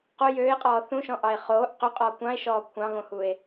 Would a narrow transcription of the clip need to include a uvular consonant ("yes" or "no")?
yes